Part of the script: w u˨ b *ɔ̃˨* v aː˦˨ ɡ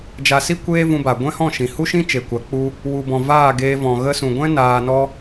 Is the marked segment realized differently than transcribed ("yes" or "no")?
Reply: no